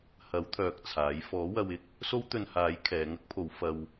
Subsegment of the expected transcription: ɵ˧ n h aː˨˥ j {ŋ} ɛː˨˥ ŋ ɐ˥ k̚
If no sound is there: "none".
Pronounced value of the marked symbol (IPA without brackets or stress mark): kʰ